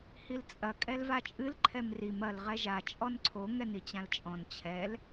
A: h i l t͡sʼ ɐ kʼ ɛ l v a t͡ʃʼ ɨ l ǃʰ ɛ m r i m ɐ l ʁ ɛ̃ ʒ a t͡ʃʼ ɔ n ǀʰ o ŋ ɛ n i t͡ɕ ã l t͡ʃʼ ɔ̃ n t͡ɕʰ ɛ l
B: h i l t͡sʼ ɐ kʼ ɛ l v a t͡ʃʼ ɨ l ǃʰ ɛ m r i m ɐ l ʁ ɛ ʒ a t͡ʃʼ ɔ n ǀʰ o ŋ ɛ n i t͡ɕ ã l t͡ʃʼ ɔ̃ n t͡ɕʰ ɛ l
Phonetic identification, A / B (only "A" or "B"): B